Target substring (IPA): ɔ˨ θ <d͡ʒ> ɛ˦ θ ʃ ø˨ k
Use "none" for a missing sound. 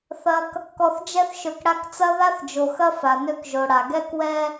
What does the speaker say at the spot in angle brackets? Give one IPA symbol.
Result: d͡ʒ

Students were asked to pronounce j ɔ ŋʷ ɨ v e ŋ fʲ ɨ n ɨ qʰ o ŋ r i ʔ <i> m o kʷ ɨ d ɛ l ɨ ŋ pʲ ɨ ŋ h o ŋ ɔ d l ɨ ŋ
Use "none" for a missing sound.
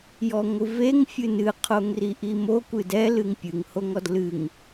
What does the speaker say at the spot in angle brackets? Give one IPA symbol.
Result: i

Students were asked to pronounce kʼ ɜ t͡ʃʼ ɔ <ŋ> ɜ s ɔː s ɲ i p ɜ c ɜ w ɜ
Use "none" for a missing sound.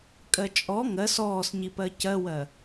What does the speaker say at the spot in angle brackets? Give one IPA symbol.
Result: ŋ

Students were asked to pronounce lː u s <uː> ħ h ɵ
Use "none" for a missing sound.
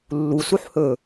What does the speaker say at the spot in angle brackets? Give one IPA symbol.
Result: u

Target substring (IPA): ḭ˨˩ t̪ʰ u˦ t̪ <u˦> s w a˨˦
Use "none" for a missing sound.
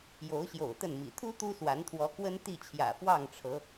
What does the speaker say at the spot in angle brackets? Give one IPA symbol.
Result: u˦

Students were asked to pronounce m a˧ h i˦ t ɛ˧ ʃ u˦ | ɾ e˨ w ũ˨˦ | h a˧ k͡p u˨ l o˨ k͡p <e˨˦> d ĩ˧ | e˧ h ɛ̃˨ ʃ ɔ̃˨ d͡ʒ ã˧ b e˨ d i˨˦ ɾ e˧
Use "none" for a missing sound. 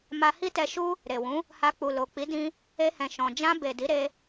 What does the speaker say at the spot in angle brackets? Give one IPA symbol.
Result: i˨˦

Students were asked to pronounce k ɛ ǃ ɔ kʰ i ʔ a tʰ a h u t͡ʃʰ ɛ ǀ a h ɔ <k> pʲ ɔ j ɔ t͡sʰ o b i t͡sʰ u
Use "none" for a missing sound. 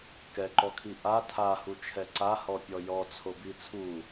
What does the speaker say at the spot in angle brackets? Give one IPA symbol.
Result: none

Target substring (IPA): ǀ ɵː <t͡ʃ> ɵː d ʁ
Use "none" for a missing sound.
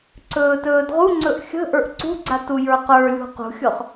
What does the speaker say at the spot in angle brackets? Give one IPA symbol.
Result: t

